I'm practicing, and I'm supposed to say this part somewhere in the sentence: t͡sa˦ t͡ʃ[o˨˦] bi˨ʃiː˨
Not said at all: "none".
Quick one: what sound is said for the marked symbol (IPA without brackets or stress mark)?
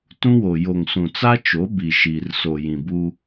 o˨˦